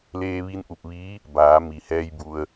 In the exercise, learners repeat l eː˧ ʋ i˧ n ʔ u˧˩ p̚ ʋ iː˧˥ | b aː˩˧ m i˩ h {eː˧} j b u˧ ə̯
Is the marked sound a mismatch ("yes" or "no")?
yes